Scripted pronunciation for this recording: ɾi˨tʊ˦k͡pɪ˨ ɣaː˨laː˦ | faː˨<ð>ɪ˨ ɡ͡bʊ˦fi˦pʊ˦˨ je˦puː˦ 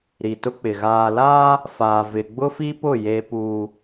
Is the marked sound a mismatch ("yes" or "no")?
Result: yes